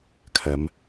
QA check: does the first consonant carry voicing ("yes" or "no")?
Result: no